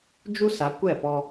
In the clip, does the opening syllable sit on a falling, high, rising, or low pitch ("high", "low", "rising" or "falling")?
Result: high